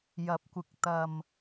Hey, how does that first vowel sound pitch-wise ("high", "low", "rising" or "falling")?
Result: rising